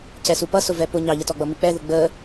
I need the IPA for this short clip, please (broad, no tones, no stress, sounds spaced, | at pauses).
c ɛ s u p ʌ s ʊ v ɛ p ʊ ɲ ɑ ʎ ə t ɔ ɡ͡b ʌ m i k͡p ɛ ð ʊ ɡ͡b ə